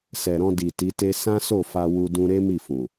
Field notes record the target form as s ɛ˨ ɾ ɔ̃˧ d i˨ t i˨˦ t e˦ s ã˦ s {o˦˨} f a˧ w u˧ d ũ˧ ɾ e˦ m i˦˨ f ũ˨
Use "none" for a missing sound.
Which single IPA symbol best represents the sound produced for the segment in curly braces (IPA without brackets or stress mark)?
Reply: o˦˨